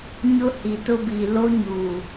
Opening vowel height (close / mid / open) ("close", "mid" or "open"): close